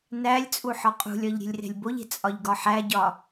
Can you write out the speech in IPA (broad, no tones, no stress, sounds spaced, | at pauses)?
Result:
n æ lʲ t͡sʼ u ħ ɒ qʼ ṳ lʲ ɒ ʎ ɾʲ e̤ lʲ r e̤ lʲ b o ʎ e̤ t͡sʼ ɒ ʎ ɡ ɒ ħ æ ɟ ɒ